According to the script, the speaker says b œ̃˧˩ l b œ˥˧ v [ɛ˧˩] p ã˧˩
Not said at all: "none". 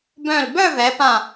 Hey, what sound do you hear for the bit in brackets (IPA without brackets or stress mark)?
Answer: ɛ˩˧